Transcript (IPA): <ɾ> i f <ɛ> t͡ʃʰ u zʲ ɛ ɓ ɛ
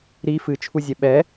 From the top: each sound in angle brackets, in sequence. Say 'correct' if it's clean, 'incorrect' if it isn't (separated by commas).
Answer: correct, incorrect